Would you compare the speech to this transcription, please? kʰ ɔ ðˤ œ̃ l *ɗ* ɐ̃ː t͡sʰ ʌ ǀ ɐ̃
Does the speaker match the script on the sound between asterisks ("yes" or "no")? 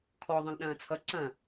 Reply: yes